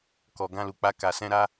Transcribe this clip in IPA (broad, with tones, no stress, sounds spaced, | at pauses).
k ɔ˨ ɡ ã˧ l u˨ k͡p a˧ k a˨ s ɛ̃˧ ɾ a˧